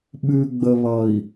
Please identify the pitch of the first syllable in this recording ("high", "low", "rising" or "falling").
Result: low